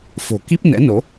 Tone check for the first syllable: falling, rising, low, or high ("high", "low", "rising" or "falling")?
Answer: low